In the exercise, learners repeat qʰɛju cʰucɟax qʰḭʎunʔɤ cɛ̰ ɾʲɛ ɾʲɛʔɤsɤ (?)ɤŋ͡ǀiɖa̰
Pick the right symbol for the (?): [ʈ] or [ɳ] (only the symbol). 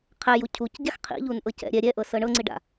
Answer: ɳ